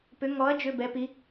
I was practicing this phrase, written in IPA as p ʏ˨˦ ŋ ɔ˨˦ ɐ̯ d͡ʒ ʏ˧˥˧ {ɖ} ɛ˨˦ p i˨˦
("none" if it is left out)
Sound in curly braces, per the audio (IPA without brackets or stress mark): b